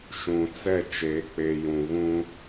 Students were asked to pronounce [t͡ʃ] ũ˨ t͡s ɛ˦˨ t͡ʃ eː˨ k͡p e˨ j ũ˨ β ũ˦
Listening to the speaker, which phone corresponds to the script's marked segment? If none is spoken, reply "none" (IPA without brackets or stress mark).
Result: ʃ